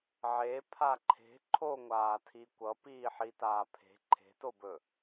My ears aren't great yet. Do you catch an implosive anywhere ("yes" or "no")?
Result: no